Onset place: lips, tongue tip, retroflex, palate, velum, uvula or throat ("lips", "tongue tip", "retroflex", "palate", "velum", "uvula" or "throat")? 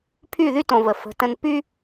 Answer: lips